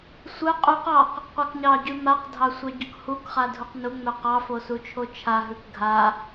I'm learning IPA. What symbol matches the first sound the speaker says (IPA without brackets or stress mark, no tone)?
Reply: sʷ